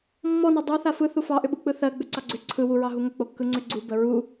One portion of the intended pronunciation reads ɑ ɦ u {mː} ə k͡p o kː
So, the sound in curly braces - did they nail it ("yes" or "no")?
no